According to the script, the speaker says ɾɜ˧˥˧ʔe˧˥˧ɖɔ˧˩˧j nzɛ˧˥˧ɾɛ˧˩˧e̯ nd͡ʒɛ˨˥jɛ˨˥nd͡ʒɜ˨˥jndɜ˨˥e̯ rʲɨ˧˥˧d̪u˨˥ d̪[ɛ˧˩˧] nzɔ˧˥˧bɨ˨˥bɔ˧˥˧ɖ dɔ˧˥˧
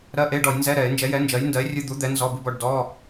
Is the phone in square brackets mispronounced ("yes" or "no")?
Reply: yes